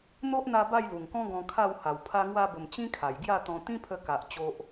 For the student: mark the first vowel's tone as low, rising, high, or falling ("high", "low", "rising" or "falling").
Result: high